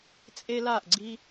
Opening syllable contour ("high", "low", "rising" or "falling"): high